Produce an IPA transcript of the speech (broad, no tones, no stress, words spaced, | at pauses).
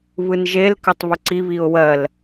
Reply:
βɯnʒel kɜtˤβɵǀi βiʊ̯wɜl